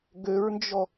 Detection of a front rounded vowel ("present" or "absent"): present